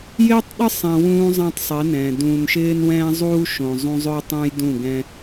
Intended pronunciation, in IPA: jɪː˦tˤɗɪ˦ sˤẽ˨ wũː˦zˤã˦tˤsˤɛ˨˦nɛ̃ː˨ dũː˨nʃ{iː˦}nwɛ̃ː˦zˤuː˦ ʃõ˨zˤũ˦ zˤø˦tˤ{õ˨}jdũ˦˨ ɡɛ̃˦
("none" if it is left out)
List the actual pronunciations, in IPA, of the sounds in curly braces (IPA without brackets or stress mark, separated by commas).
ɪː˦, õ˦